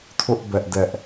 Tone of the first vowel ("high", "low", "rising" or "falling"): high